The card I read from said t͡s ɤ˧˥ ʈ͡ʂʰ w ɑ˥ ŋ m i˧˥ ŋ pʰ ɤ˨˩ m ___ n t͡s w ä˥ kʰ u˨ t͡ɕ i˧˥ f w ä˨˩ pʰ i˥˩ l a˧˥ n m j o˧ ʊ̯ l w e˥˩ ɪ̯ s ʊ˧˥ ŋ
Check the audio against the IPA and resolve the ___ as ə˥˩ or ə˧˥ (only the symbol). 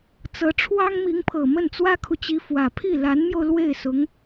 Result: ə˥˩